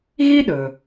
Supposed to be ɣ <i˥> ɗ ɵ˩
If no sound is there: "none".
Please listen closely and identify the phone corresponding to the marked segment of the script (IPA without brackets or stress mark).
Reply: i˥